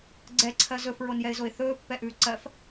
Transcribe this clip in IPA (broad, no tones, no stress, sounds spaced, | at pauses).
ɡ͡ǀ ɛ ǀʰ ɜ z ɵ f ɹ o n j ɛ ɪ̯ z o ɪ̯ θ ɵː pː ɛ ʔ ʉː ǀ ɜ f